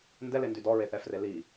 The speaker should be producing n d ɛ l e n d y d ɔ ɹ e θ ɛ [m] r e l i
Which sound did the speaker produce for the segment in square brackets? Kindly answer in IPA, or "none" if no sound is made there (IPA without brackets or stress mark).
f